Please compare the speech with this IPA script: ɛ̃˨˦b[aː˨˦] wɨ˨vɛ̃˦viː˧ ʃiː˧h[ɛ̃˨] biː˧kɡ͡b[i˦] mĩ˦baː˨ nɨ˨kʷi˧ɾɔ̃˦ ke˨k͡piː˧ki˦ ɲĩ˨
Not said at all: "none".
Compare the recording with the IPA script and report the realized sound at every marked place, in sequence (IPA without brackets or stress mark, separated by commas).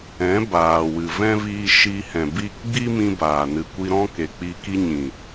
aː˨, ɛ̃˨, i˦